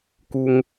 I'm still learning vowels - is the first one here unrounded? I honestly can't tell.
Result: no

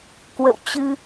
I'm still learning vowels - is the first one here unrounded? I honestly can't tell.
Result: yes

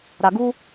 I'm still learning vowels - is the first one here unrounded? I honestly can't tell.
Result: yes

